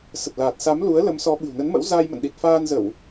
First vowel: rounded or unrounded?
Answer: unrounded